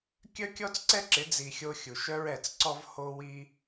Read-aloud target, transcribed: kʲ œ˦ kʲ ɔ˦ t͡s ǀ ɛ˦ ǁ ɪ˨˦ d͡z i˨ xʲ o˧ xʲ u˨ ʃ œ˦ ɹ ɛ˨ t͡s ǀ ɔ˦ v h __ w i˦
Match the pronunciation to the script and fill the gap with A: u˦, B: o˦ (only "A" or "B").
B